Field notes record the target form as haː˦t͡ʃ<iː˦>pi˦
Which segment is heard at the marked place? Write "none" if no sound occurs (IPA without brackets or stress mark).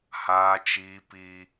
iː˦